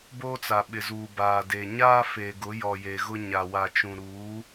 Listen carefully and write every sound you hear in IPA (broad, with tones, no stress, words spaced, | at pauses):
boː˦t͡sa˨ɓɪ˨zuː˨ baː˨ de˨ɲaː˦ fe˨ɡʊ˨˦jɔ˨ je˨ɣʊ˦ ɲa˨wa˨t͡ʃũ˨ ɾuː˨˦